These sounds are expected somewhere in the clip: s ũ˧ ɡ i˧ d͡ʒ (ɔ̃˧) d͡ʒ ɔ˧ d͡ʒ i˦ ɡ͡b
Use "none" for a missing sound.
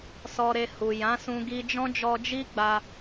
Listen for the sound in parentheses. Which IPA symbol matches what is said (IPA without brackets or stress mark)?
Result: ɔ̃˦